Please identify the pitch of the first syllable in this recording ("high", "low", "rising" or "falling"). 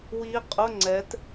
rising